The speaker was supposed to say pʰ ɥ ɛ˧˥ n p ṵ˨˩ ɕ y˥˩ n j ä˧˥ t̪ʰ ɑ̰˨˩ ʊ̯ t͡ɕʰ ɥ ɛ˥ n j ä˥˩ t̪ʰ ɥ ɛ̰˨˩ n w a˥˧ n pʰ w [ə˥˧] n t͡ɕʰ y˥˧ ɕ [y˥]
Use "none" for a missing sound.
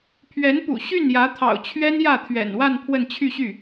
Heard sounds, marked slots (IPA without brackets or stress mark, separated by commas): ə˥˧, y˥˩